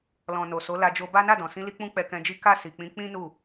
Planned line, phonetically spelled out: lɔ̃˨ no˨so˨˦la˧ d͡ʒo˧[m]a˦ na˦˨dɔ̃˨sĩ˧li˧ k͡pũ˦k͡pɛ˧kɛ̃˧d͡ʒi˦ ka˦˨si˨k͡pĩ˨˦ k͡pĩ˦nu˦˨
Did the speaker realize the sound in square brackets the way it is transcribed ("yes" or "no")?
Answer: no